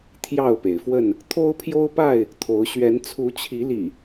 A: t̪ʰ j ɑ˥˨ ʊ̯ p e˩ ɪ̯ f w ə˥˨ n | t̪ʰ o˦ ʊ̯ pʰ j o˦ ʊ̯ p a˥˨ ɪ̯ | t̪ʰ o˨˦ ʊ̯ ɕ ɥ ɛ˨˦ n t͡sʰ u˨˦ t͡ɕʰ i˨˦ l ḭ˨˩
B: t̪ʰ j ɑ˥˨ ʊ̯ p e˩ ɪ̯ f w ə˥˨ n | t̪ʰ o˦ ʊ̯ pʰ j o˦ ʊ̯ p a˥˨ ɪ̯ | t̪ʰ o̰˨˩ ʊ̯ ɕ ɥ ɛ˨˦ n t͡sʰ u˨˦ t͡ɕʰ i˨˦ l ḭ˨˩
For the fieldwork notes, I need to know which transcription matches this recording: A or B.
A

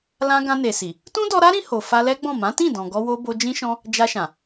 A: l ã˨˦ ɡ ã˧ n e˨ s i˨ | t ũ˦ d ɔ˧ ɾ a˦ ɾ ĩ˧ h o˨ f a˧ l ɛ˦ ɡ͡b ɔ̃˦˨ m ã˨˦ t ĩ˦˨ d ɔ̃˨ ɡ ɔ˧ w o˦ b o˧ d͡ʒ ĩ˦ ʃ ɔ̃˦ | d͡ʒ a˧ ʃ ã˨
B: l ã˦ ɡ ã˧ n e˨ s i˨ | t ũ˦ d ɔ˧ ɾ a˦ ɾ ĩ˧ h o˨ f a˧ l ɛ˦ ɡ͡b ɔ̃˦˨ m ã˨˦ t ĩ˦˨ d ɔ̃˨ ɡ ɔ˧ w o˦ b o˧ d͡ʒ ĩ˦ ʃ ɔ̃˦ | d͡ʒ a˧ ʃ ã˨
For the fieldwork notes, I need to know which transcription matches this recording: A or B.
B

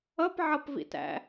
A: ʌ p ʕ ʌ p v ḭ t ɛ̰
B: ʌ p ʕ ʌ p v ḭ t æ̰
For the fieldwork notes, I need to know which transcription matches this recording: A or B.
B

